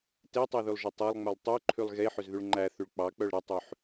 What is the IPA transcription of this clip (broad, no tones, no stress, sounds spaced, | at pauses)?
t e tˤ e ð y lˠ ʒ ɵ tˤ ɛ lˠ ŋ͡m œ lˠ tˤ y ǃʰ ʉ lˠ ɣ e ħ ø z ð y ɭ ŋ͡ǃ æ θ y ɭ k͡p ɑ k͡p œ ɭ ɾ ɛ tˤ ʉ ħ